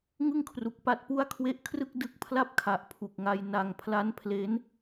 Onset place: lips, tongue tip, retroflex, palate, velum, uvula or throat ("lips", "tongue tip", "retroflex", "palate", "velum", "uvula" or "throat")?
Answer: velum